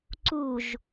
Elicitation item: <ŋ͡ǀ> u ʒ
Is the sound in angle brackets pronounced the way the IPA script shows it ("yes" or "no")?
no